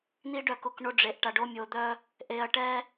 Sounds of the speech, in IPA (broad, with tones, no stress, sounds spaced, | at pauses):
n̪ i˦ ɖ œ˦˨ k ʊ˦˨ k ɳ o˦ ɖ͡ʐ e˨ ʔ ʈ a˨ ɖ o˦ mʲ o˨ d̪ œ˦ | ʔ e˨ ɐ̯ ʈ ɛ˦